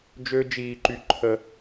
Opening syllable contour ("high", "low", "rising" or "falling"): high